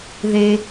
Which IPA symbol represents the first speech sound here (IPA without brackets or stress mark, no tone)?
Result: ð